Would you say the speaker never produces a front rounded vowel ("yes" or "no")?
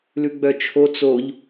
no